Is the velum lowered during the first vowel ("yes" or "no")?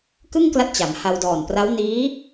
no